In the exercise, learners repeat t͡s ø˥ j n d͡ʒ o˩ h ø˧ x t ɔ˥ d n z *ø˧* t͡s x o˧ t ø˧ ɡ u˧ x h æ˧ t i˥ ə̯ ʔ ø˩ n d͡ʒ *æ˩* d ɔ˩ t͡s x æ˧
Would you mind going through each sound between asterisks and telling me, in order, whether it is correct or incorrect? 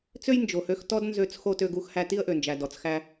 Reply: correct, correct

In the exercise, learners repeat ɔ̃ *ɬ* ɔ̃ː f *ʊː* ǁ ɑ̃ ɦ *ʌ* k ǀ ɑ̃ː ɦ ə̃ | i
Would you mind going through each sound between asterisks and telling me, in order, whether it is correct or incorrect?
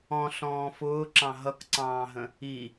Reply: correct, correct, correct

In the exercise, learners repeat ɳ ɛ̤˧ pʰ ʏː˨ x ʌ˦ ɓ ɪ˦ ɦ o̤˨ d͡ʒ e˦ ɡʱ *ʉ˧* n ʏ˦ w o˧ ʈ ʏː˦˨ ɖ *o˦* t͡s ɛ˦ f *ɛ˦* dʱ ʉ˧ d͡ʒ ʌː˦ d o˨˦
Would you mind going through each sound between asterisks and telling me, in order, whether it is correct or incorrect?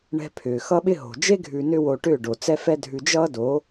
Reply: correct, incorrect, correct

